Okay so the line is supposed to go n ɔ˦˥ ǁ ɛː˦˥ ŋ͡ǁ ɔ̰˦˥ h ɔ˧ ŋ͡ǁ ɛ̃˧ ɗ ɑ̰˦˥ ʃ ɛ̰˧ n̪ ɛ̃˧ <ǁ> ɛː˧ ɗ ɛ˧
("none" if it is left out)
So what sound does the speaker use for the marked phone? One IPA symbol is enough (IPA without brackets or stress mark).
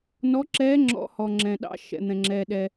ŋ͡ǁ